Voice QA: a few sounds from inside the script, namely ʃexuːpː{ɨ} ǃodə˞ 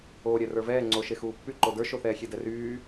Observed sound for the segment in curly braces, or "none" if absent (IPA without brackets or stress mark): y